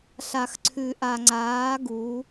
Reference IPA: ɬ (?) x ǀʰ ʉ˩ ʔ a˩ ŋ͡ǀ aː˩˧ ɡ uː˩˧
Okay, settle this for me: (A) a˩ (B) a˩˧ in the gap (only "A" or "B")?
A